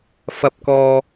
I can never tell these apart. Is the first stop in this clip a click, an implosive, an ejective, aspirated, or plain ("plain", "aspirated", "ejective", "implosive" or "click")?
plain